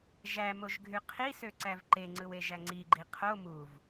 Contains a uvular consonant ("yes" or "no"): yes